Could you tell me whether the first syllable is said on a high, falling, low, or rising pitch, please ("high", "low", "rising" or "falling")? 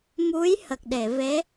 rising